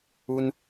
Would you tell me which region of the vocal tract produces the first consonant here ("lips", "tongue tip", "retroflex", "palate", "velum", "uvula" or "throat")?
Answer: tongue tip